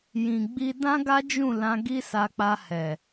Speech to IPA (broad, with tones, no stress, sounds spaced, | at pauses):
j ĩ˨ ɡ͡b i˧ d ã˦ ɡ a˦ d͡ʒ ũ˦˨ l ã˧ ɡ i˦ s a˧ k͡p a˧ h ɛ˨